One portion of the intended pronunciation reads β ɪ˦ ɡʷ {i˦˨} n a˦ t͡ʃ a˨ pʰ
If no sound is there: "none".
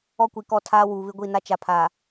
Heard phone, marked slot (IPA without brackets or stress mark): i˦˨